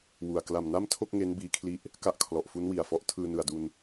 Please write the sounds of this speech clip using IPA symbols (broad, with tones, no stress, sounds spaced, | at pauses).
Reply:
w u˨˩ a̯ k l a˨˩ m n a˥˩ m tʰ o˥˩ k̚ ŋ e˦˥ n b iː˦˥ kʰ l i˥˩ ʔ | k a˦˥ ʔ kʰ l ɔ˨˩ ʔ f u˦˥ n w i˨˩ a̯ f ɔ˦˥ ʔ tʰ ɯː˧ n ɯ˨˩ a̯ d u˧ n